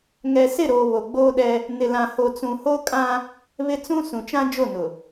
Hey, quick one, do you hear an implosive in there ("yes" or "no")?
yes